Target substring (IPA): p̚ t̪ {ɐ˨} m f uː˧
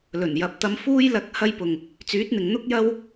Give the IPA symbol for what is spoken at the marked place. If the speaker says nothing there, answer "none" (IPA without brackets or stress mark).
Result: ɐ˧